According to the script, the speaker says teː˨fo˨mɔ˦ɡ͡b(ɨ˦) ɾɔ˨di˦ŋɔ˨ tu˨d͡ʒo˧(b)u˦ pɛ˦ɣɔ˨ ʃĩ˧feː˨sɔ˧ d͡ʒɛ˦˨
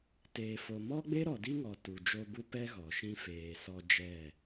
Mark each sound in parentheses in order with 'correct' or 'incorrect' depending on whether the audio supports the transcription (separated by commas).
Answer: incorrect, correct